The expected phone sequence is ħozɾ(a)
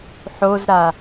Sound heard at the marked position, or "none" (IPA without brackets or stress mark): a